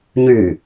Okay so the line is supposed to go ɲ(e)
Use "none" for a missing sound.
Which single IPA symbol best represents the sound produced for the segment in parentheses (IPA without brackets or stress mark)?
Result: y